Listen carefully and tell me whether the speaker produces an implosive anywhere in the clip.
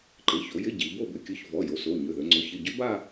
no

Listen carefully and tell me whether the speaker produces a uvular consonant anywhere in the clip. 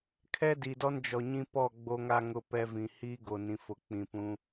no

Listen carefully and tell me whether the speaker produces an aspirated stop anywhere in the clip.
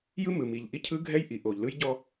yes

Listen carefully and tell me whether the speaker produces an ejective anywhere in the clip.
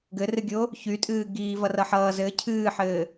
yes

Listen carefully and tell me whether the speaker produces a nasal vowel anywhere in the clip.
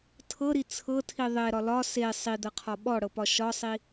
no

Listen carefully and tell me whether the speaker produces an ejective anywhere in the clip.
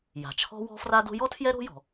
no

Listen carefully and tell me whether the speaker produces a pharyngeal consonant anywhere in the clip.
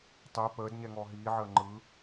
yes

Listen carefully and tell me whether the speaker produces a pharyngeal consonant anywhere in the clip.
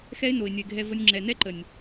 no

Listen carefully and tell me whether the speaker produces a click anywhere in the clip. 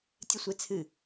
no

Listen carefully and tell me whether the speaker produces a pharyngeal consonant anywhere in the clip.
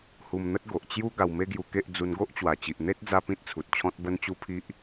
no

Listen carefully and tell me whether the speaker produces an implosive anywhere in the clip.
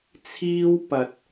no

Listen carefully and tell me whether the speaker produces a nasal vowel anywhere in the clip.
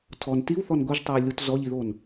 no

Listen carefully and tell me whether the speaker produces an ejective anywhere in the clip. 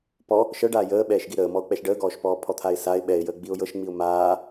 no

